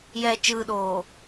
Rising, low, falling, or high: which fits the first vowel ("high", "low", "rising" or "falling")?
low